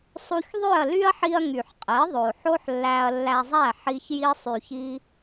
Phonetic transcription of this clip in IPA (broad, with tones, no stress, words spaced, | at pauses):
sˤu˧ç ðˤø˦˨ɐ̯ly˦ɐ̯ħi˧ɐ̯ ŋy˨ħqʼe˨˦ðˤo˨ ħo˦ħlːæ˧ɐ̯lːæ˧zˤæ˦˨ ħi˧ç ji˦sˤy˧çi˦